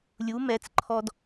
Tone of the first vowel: rising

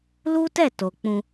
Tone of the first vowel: high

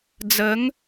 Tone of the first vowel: rising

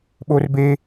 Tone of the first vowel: high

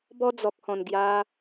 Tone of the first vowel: high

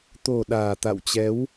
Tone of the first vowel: low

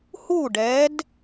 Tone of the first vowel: falling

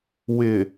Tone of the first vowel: low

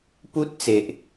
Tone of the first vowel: high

